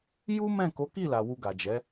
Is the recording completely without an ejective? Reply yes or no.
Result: yes